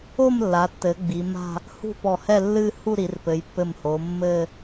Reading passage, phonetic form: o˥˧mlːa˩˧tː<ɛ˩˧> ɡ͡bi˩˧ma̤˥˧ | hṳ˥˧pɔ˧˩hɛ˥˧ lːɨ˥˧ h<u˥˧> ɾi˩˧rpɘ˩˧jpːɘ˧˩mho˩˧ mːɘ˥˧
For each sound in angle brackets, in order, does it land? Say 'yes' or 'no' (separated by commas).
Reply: no, yes